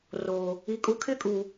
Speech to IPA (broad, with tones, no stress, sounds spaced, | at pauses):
r oː˨ | i˨ kʼ u˨˦ kʰ ɪ˦˨ kʼ u˨